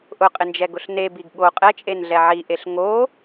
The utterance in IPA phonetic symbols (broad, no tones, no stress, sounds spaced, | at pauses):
ʔ ʊ qʼ ɪ n d͡ʒ ɛ ɡ ʊ ɬ n e b i ɡ ɠ o qʼ ɛ t͡ʃʼ e n ɮ ɛ ʕ i ʔ e ɬ ŋ o